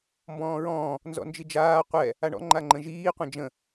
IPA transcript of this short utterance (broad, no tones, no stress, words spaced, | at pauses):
mbɔ̃ːɹɔ̃ː | nzɔ̰nd͡ʒid͡ʒaː qʷɛ | aɳɔ̰ŋ͡ǃaŋ͡ǃə̃ ʒiːqʷɛ̃ d͡ʒə̃